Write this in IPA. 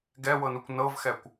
ɡ ɛ w ɤ n u kʷ n ɤ v x ɛ kʷ

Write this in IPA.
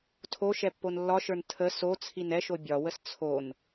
tʰ o ʃ ɛ pː o n lː ɒ ʃ ə˞ n tʰ ə s o t͡sʰ i n ɛ ʃ o bʲ ɒ w ə s t͡sʰ o n

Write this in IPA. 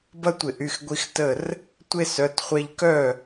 b ɐ˥ tʷ ɪ˧˩˧ ʔ y˩˧˩ x ɡʷ i˧ x t ə˥˩ r | tʷ e˥ s œ˩˧˩ t χʷ ɛ˧ ʎ k œ˥˩

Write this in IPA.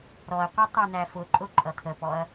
ɾ ɔ ɐ̯ qʷ ʌ tˤ ə˞ n̪ æ f ʊ ǃʼ ʊ ǃʼ ʌ t̪ʰ ə p ɔ ɐ̯

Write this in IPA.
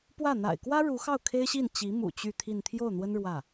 p w ä˥˩ n̪ a̰˨˩ ɪ̯ k w ä˥ ɻ u˧˥ x ɑ˥˩ ʊ̯ kʰ e˥ ɪ̯ ɕ i˥˩ n t͡ɕ i˧˥ m ṵ˨˩ t͡ɕ y˥˧ t̪ʰ i˥˧ n t̪ʰ j o˥˩ ʊ̯ n̪ w ə˥ n ɻ w ä˥˩

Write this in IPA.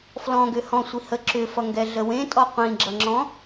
f l ɔ̃ ɡ ʏ h ɔ̃ sʷ i h ə ǁ ʏ f ʌ ŋ ɡ ɛ ɮ ə w ẽ tʼ ɔ qʷ ĩ ɡ͡ǁ ʌ ŋ͡ǁ ɔ̃

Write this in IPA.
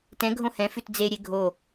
t ɛ̃ ɡʱ õ h ɛ̃ f ʉ t d͡z e ɾʲ e ɡʱ o

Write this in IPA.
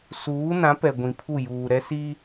s uː˨˦ n ã˨˦ p ɛ˨ ɡʷ ĩ˨ pʰ u˦˨ j uː˨ ɾ ɛ˦ s i˦

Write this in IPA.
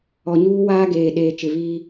ɔ˨ ɲ uː˦ w aː˦ ɡ eː˨ ɗ eː˨ t͡ʃ ɪ˨ β iː˦

